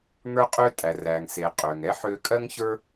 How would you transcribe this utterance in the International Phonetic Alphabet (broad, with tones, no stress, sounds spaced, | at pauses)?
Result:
ŋ ə˞˥ qʼ ø˥ tʼ æ˩ r æ˩ ŋ s e˩ qʼ ø˩ ŋ ɛ˥ ħ ø˧ kʼ ɜ˥ ŋ ç ə˞˥